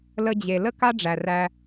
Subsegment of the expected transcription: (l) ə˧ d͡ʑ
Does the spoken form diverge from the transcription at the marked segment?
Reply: no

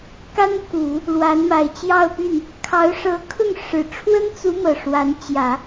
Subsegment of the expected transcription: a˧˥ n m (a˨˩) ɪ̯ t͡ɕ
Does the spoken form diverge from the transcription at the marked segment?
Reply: no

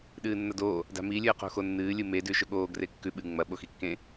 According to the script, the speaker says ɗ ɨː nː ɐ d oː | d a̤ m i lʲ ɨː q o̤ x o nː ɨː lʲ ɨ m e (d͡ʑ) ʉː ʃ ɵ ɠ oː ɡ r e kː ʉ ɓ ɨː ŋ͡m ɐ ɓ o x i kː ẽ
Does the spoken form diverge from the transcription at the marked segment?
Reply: yes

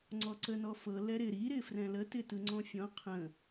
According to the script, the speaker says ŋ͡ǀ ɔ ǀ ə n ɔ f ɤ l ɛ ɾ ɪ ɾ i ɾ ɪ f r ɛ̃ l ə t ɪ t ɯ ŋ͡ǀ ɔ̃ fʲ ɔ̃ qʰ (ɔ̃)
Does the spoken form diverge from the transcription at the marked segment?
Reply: yes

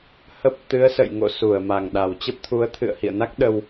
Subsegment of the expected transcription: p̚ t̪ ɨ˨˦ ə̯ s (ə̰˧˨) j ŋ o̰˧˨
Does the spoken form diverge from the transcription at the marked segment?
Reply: no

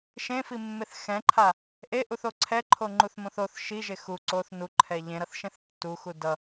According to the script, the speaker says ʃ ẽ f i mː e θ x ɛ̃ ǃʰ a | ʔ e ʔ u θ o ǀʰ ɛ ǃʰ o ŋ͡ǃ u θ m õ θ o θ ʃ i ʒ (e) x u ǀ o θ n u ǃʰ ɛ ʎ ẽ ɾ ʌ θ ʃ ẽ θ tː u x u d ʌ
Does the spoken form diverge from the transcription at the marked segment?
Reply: no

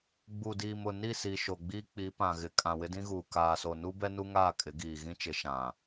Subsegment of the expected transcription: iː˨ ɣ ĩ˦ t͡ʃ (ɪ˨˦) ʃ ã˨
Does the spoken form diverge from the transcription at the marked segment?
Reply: no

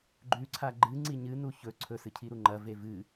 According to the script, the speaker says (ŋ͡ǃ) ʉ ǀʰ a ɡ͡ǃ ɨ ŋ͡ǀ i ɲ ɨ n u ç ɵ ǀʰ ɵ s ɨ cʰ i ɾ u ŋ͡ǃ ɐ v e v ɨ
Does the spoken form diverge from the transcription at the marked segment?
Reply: yes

